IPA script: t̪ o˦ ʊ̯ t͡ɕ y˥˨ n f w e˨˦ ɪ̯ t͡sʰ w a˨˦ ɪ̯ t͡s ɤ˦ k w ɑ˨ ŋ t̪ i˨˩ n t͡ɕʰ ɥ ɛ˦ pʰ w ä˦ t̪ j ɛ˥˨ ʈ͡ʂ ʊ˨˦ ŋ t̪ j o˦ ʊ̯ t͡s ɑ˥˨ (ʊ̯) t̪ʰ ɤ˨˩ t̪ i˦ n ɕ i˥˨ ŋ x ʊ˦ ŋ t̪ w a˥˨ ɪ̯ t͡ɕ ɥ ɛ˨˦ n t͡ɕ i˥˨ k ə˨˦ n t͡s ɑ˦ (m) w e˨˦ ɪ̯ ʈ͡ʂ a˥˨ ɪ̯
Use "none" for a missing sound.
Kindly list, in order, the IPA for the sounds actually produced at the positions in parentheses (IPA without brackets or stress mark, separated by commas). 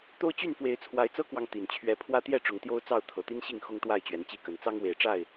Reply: ʊ̯, ŋ